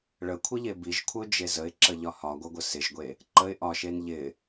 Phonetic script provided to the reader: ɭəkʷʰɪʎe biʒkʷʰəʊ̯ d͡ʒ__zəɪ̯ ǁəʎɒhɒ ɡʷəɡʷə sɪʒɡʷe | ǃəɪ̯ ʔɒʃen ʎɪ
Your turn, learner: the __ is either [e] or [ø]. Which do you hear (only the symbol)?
e